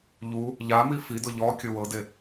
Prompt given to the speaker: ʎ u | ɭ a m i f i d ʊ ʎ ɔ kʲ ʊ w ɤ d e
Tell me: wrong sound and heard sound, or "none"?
ɭ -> ʎ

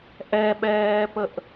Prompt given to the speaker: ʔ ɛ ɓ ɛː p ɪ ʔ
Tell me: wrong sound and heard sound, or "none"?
ɪ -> ə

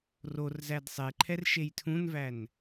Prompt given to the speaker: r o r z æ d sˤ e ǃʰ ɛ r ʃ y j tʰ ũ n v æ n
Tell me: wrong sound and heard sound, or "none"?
y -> e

